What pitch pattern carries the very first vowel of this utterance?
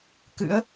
rising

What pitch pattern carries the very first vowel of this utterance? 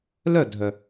falling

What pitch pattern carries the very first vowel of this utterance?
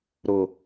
low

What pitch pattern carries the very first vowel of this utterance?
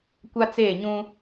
high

